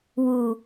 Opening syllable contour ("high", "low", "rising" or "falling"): low